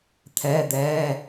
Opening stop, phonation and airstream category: aspirated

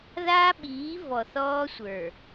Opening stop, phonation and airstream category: implosive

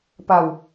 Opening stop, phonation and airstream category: plain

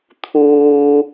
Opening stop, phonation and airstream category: aspirated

